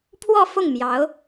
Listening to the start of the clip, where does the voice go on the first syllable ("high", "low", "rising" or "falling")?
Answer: falling